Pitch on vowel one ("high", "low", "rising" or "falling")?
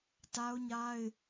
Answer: high